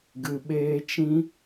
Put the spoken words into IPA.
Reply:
ɡ ɨ˨ ɓ eː˧ t͡ʃ ĩ˦

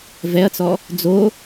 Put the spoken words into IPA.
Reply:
v ɛ ɐ̯ t͡s ɔ | d͡z o

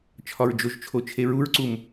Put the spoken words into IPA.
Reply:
t͡ʃʰ ɒ ɹ d͡ʒ o ʒ t͡ʃʰ o t͡ʃʰ e ɹ u ɹ ǀ u m

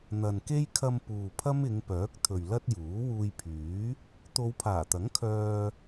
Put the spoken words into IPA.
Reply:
n̪ ɐ˨ n k e˥ j kʰ ɐ˧ m p uː˨ pʰ ɐ˥ m ɪ˨˧ ŋ p œː˨˥ k̚ t̪ʰ ɵ˨ ɥ l ɐ˥ t̚ j uː˨˥ w uː˧ j pʰ yː˨˥ | t̪ o˨˧ w pʰ aː˨˩ t̪ ɐ˨˥ ŋ kʰ œː˧

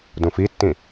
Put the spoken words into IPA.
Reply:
d ũ f i tː ĩ

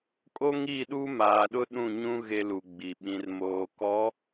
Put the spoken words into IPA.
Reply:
kʼ o˦ ŋ i˦˨ ɗ u˦ m aː˨ ɗ ʊ˦ ɗ ũ˦˨ ɲ ũ˦ ɣ e˦ l u˨ ɡ͡b i˨ ɓ ĩ˨ r m oː˨ k ɔ˨˦

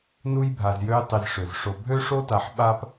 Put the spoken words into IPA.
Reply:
n u˦ j bʱ a˨ z j ø˦ j tˤ i˨ z ʂ ø˩ z ʂ o˨ bʱ ø˥ ʂ o˥ t a˨ ħ ɓ a˦ p

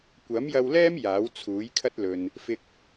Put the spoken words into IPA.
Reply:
kʷ ɐ˨˥ m j ɐ˧ w l ɛː˥ m j aː˨˥ w t͡sʰ uː˨˥ j kʰ ɐ˥ t̚ l ɵ˨ n | f ɪ˨ k̚

